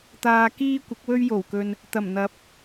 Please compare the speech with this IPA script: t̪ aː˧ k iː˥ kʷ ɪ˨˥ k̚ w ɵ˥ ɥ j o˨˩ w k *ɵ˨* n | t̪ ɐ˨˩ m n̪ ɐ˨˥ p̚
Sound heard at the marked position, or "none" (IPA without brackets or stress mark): ɵ˨